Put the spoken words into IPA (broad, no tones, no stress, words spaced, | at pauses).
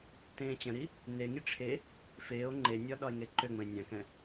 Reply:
tẽːt͡ɕə̃ɾi | neŋi ʈ͡ʂʰe | feːo̯ ŋ͡ǃenʲɒ ɗɒe̯ŋeǃøŋ͡mə̃e̯ nʲãkɛ̃